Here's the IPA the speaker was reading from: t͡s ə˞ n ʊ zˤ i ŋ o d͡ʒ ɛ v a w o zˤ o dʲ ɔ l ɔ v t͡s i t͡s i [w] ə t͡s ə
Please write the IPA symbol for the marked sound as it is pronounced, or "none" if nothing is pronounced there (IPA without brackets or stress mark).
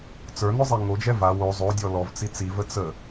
v